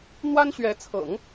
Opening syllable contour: high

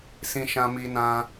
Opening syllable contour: high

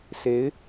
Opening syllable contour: rising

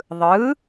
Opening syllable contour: rising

